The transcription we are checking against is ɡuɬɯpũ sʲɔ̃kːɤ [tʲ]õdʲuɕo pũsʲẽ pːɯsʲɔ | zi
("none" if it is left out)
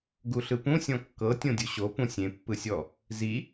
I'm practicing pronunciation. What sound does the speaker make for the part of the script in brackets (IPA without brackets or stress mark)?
tʲ